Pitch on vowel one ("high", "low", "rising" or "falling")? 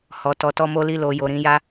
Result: low